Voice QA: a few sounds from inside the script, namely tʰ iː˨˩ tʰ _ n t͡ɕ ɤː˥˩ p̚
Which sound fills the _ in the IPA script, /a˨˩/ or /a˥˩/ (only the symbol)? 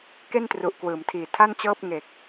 a˥˩